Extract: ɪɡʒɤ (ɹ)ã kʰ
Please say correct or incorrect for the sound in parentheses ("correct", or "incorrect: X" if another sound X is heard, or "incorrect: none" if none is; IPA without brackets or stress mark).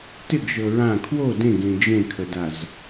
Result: correct